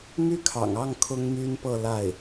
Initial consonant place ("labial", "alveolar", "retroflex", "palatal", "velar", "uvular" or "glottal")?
labial